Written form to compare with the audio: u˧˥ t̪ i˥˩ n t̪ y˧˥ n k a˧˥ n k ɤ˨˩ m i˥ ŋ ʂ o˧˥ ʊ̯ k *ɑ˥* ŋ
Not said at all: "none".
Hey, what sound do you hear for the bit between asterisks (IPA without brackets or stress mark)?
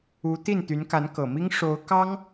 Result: ɑ˥